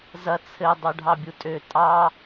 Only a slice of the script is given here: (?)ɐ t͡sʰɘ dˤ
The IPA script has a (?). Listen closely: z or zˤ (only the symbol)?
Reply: z